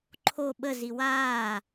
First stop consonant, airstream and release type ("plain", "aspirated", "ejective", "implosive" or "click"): click